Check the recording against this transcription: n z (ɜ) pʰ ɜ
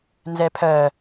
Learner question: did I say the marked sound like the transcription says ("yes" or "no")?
no